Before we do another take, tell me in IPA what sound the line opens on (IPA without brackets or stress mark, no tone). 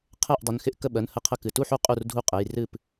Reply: qʰ